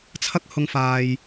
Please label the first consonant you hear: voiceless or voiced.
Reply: voiceless